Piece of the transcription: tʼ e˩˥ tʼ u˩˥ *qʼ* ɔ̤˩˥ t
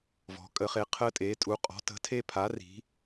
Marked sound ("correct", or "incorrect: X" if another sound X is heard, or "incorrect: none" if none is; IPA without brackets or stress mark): correct